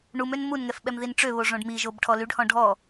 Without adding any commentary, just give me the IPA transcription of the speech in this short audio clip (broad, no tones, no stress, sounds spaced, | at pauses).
ɳ u m ø n m u n ŋ ɛ f ɓ ɛ m ð i n ʈ͡ʂ ø β o ʐ õ ɖ m i ʒ o b ʈʰ ɔ l y ɖ h ɔ̃ ɖʱ ɔ